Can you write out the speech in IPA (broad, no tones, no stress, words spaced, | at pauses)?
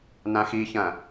nãxiçɐ̃